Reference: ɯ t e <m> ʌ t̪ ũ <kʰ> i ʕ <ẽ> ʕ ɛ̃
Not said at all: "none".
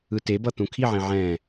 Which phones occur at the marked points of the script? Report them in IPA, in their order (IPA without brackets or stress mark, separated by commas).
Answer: b, kʰ, ẽ